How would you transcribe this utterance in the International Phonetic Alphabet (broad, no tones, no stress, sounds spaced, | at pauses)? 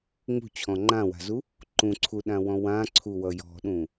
ŋ͡m ṳ t͡ɕʰ ɔ̃ ŋ͡ǃ ã w a̤ z u | ǃ ũ ǀʰ u ɗ ã w ɔ̃ w ã ǀʰ u w ʌ j ɔ̤ ɗ ũ